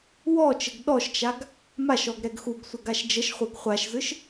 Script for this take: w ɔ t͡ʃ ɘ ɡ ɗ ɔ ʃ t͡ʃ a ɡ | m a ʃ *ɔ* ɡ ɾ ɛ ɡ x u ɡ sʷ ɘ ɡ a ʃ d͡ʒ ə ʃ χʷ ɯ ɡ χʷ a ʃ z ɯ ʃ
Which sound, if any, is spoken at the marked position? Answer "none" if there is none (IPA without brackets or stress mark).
ɔ